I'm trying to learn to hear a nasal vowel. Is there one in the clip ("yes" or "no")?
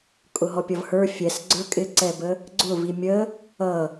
no